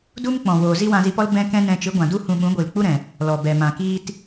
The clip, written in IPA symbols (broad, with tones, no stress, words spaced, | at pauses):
du˦mk͡pɔ̃˨woː˨ zi˦wã˧zi˧pɔ˦l bɛ̃˦kɛ̃˦nɛ̃˧ t͡ʃɨ˨˦ɡʷã˨du˦ hũ˧ɓũ˨˦ɡʷɨ˨l k͡pu˦ɾɛ̃˨ | lɔ˨ bɛ˨mã˨ kiː˧t